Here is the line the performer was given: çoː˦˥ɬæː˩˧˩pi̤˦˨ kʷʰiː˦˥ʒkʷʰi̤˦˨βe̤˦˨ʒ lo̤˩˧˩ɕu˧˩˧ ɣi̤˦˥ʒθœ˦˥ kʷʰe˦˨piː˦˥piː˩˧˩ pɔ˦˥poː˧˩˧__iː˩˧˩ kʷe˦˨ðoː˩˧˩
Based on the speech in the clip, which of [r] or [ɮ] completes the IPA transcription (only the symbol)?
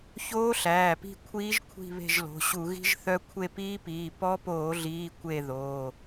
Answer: ɮ